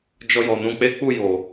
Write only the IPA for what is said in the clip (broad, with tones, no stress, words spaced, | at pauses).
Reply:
d͡ʒɔ˧jɔ˨nũ˧k͡pe˦ k͡pu˦˨jo˨